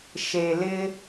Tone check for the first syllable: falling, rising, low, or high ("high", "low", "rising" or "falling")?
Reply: low